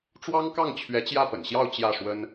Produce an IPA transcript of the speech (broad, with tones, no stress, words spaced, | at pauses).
ʈ͡ʂwɑ˥ŋkɑ˥˩ŋ t͡ɕʰɥɛ˧˥t͡ɕjä˥˩pə̰˨˩nɕjɑ˥˧ʊ̯ t͡ɕjä˥˩ʂwə˥n